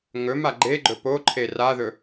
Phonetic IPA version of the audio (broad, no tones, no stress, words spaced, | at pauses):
ŋɵma ɡ͡ǃeɡ͡ǃɵ poǃʰe raðɵ